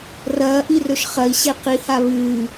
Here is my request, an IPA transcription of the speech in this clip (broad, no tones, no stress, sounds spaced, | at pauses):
r ɐː ʔ i r ɵ ʃ χ ɐ i̯ ɕ e q i h a β ɨː